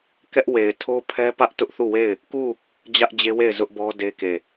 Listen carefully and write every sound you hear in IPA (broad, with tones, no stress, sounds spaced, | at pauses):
k ɛ˦ ʔ w e˨ ɪ̯ tʰ o˦ pʰ ɛ˦ p ä˦ ʔ t ʊ˦ ʔ θ u˦˨ w e˦˨ ɪ̯ | k u˦˨ | d͡ʑ ä˦ ʔ d͡ʑ e˦ w e˦˨ ɪ̯ z ʊ˦ ʔ b ɔ˦ d e˦ k e˦˨